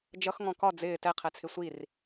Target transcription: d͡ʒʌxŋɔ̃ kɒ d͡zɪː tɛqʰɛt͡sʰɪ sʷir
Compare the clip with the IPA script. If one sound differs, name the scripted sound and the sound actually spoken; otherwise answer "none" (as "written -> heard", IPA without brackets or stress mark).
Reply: none